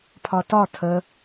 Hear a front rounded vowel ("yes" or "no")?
no